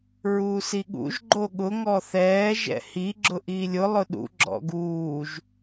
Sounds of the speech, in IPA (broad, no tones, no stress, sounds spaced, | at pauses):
ɹ uː s i ɠ ṵ ʒ ɡ͡ǃ o ɠ ʊ ŋ ɔ θ ɛː ʒ ɛ̰ h i ɡ͡ǁ ʊ ʔ iː lʲ ʊ lˠ ʊ ɗ ṵ ɡ͡ǁ ɔ̰ ɡ uː ʒ